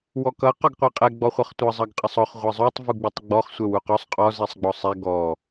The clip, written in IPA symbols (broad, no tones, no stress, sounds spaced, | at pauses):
w ɔ k ʌ q ɔ ɡ qʷ ɛ qʼ ɛ ɡ͡b ɔ χʷ ʌ χ tʷ ʌ zˤ ʌ ɡ qʼ ʌ sˤ ɔ χ ʁʷ ɛ zˤ u tˤ v u ɡ͡b u tˤ ɡ͡b ɔ χ sʷ ɛ w u q ɔ sˤ qʼ ɔ z ɛ sˤ ɡ͡b ɔ sˤ ɛ ɡ ɔ